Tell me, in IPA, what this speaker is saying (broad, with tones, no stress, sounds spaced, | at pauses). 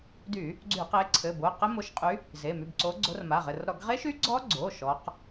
d y˧˩˧ | ɡ͡ǀ y˧˩˧ q e˨˦ ǀʰ ɘ˩˧˩ b o˩˧˩ q ɘ˦˥ m o˨˦ ʃ qʼ y˨˦ | z e˩˧˩ m y˩˧˩ b ǀ o˨˦ ɡ͡ǀ o˨˦ r m a˩˧˩ ʁ ɘ˩˧˩ r ɾ ɔ˧˩˧ ɡ ʁ e˦˥ ʃ y˦˥ ɡ͡ǀ ɔ˦˥ ɡ͡ǀ o˩˧˩ ʃ ɔ˨˦ q